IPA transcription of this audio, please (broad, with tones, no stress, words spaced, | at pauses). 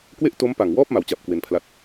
kwe˥˩ʔto˦˥mpa˨˩ŋwɔː˥˩p̚ ma˩˦wt͡ɕa˨˩p̚ kwe˧npʰla˦˥t̚